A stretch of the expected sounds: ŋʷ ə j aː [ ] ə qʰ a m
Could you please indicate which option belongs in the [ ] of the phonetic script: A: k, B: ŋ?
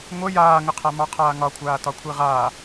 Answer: B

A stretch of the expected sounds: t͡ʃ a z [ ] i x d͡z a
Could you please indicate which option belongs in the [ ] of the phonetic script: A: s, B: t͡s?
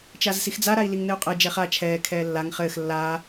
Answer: A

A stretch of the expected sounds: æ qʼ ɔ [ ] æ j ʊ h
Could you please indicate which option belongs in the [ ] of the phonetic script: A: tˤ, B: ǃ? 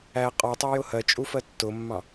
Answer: A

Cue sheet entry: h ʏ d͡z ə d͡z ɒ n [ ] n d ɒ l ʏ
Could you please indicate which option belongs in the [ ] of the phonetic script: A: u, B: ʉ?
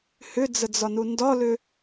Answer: A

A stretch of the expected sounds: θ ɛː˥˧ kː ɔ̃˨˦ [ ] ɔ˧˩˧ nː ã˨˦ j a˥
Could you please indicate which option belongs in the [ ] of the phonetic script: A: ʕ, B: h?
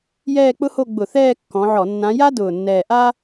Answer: A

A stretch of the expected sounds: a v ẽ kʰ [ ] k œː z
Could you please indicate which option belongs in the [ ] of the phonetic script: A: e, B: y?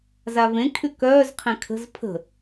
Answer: B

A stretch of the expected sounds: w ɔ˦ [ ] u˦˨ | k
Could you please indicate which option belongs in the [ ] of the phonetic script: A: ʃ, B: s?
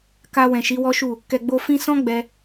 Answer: A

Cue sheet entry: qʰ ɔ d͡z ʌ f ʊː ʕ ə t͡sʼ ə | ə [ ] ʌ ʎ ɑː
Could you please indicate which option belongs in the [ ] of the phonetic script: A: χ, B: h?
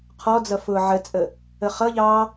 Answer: A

